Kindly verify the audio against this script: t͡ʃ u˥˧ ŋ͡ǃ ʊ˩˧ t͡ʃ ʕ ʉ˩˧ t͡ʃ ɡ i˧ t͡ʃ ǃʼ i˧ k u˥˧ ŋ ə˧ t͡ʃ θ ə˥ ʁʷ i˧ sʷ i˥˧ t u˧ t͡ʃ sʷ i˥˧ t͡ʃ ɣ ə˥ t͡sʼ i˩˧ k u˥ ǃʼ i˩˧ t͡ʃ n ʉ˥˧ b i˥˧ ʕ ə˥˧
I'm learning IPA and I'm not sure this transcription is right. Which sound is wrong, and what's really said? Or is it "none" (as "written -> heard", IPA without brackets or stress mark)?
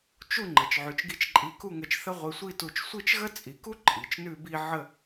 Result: ʊ˩˧ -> ə˩˧